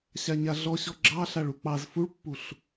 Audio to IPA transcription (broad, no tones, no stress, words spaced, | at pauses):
ɕaɲaɮɔɕɔ ɡ͡ǁɑ ɬaɭuk͡pɑz fuɭpːuɬ